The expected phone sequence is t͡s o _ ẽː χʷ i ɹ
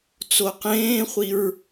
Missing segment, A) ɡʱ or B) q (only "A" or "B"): B